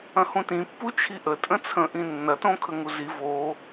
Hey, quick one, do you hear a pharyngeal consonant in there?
no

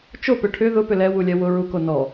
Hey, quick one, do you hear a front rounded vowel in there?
yes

